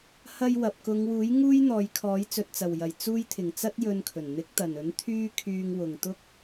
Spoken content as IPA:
hɐ˧jwɐ˨p̚ kʊ˨˧ŋwuː˨˥j ŋuː˥jn̪ɔː˨˧jkʰɔː˨˥j t͡sɵ˨t̚t͡sɐ˨˩wjɐ˨˩j t͡suː˥j t̪ʰɪ˨˩ŋ t͡sɐ˥t̚jɵ˧nkʰɵ˨˩n n̪ɪ˨˥k̚t̪ɐ˨˩nɵ˨˥n t̪ʰyː˥ kʰyː˧ŋ wʊ˨ŋt̪ʊ˥k̚

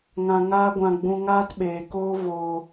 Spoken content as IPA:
ŋã˧ŋaː˦ɡʷã˧ ɡ͡bũ˧ŋaː˦tɓeː˨koː˦ voː˧

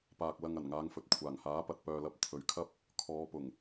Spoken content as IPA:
paː˨k̚ lɐ˨ŋ ɐ˨˩nŋaː˨˧ŋfɵ˨˥t̚ kʷʰaː˨˩ŋhaː˨˥pɐ˨t̚ pœː˨lɐ˨˥p̚ t̪ʰɵ˨ɥkʰɐ˥p̚ | kʰɔː˨˧pʊ˨˩ŋ

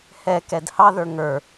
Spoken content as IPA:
hɛkɛd hɑðə˞ ŋə˞

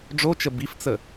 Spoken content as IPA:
ɖ͡ʐot͡ʃə bift͡sə

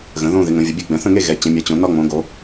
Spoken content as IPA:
ɣə̃˩˧ðõ˥˧ ðɪ˩˧ŋə̃˩˧vʲə˩˧bʲe˥˧ ɡ͡bɛ̃˩˧θə̃˥˧ŋe˥˧ ɣɛ˩˧t͡ɕɛ̃˩˧mʲɛ˩˧t͡ɕõ˩˧ nɒ˥˧ŋ͡mõ˩˧ɡo˩˧

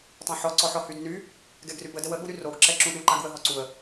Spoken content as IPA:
tˤũħɔǀɔħɔ hydny | ɡɛɡrybədəw əɠuɾy roɡǁɛ ǁũɗuǃaɡ wəɦɔǀuə̯

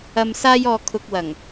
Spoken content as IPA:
ɐ˧m saː˥jɔː˧ kʰʊ˧k̚wɐ˨˩ŋ

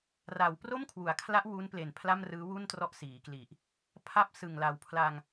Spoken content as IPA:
ra˩˦w pro˥˩mkʰwu˩˦a̯kʰla˦˥ʔ wu˦˥nple˨˩n pʰla˥˩mrɯː˦˥wu˥˩n trɔ˦˥ʔsiː˩˦kli˨˩ʔ | pʰa˥˩p̚ sɯ˨˩ŋla˩˦wpʰla˧ŋ

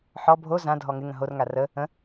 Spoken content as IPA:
ħɔ bʱo zãdʱɔ ŋɪŋə̃ ɦorŋa rə | ə̃

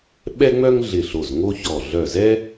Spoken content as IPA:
ɓɛ˥ŋ͡mœ˥ŋ ɮɪ˧˩ ɬo˧˩zŋo˥çɔ˧˩ ɮœ˧˩zɛ˥

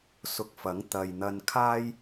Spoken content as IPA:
sʊ˧k̚fɐ˨˥ŋ t̪ɐ˨jn̪ɐ˧nkʰaː˥j

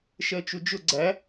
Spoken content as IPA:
ʃɜt͡ʃud͡ʒʊ ɡ͡ǀæ

